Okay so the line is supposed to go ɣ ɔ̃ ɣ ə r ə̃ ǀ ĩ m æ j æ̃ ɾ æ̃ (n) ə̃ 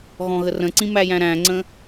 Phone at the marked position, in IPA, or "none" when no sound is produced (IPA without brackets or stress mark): ŋ͡ǀ